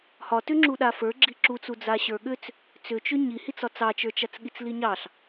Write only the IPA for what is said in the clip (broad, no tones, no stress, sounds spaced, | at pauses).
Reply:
h ɒ t ʏ ŋ͡ǁ u ɗ a f ə˞ ɡ͡ǁ i ǁ u t͡s u d͡z a ɕ ə˞ ɠ ʏ t͡s | t͡s ʏ t͡ʃ ʏ ɲ i h i t͡s ɒ t͡s ɑ t͡ʃ ə˞ t͡ʃ a t͡s ɠ i t͡s l i ɲ ɑ ɬ